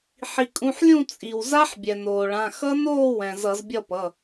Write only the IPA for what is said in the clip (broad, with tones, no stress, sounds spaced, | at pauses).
ħ i˩ kʼ ũ˩˧˩ ħ lʲ ũ˥˨ t͡sʼ i˩ w z a˦˥ ħ bʲ ɛ˩ n oː˩ ɭ ã˩˧˩ x ʌ˦˥ n oː˥˨ w ɛ̃˩ z ʌ˧˩˧ z bʲ ʌ˥˨ p ʌ˩˧˩